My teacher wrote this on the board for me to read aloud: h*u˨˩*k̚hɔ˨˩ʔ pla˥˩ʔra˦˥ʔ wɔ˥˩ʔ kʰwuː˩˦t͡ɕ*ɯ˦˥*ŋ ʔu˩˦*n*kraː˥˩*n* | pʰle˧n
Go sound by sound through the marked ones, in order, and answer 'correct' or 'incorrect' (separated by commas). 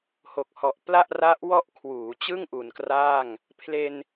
incorrect, incorrect, correct, incorrect